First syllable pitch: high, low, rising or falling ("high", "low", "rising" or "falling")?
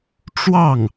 falling